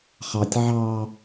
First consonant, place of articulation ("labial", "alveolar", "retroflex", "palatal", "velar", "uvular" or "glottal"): uvular